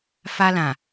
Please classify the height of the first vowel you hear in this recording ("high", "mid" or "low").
low